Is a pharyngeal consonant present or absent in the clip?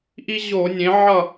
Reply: present